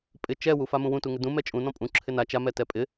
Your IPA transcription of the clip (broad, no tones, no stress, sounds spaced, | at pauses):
pʼ ɪ t͡ʃ ɛ w u f a m ũ w ũ t u ŋ ɪ d ũ m ɛ t͡ʃʼ ũ n ɔ̃ pʼ ũ ǁʰ ɪ n a t͡ʃ a m ɛ t ɛ pʼ ɪ